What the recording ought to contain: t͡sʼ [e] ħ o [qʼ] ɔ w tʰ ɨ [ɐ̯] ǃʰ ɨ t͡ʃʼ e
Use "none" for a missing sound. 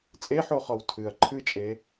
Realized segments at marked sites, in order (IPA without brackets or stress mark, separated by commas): e, χ, ɐ̯